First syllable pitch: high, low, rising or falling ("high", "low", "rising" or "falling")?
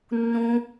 low